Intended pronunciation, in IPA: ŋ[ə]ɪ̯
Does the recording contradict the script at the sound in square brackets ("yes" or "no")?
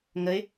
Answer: no